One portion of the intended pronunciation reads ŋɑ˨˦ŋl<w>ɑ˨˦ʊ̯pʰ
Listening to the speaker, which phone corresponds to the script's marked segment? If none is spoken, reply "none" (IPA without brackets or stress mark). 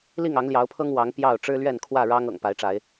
j